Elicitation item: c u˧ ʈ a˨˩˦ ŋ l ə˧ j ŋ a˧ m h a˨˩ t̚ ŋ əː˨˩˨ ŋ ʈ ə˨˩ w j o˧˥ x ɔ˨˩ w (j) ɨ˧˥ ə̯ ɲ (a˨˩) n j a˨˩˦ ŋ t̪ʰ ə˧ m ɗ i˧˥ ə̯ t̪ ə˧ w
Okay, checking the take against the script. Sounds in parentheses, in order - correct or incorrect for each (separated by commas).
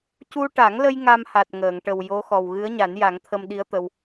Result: incorrect, incorrect